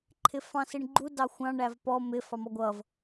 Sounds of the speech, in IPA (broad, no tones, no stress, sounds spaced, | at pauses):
ǃʰ ɪ f ɑ̃ s i ɳ ɡ͡ǃ u d ɑ xʷ ɑ̃ ɳ æ v p ɔ m ɪ f ɑ m ɔ ɡʷ ʌ v